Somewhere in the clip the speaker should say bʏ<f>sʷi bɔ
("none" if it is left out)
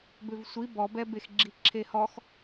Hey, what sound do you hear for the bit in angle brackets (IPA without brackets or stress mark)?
v